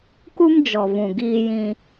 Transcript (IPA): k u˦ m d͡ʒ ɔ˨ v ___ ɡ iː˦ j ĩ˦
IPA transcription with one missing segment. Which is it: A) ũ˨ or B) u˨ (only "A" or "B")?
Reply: A